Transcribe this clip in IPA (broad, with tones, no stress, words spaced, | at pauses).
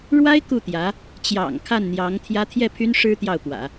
ɻwa˥ɪ̯ ku˥˩t̪jä˧˥ | t͡ɕjɑ̰˨˩ŋ kʰa˥˩nn̪jɑ˧˥ŋt̪ʰjä˥ t̪ʰjɛ˥˩pʰy˥n ʂɻ̩˥ t̪jɑ˥˩ʊ̯pwä̰˨˩˦